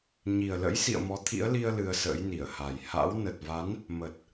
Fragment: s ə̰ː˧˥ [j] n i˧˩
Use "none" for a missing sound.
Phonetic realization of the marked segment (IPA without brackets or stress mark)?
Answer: j